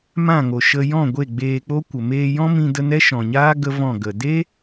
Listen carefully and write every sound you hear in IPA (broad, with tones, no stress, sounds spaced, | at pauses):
m ã˦˨ ŋ o˨ ʃ ə˧ j ɔ̃˦˨ ɡʷ e˦˨ ɡ͡b eː˧ k͡p o˦ kʷ ə˨ m eː˧ j ɔ̃˦ m ĩ˧ d ə˧ n ɛ˦ ʃ ɔ̃˨ ɲ aː˦ ɡ ə˦ v ɔ̃˦˨ ɡ ə˨ d e˦